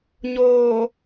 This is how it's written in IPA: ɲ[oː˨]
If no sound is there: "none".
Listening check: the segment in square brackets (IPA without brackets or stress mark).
oː˨